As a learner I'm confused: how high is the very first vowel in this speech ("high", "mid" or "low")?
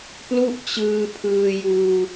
high